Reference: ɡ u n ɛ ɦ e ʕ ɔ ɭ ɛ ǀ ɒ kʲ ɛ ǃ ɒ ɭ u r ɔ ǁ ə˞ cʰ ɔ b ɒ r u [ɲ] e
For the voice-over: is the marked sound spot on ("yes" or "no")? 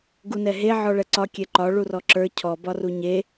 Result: yes